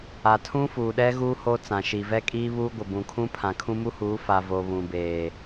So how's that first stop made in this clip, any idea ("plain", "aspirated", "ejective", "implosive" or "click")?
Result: aspirated